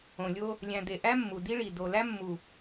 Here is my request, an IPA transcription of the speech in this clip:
õ˨ lʲ o˦ | lʲ æ̃˨ d̪ e˨ ʔ æ˦ mː u˨ d i˦ ɭ i˨ d o˨ l æ˦ mː u˨

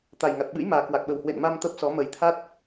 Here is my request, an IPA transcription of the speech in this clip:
t̪ a˨˩ j ŋ a˨˩ t̚ ɓ ɨ̰˧˥ j m aː˨˩ k w a˨˩ k̚ ɓ ə˨˩ w h w ḛ˧˨ n m a˧ m t̪ ə˦˥ p̚ s ɔ˨˦ m ə˨˩ j t̪ʰ a˦˥ t̚

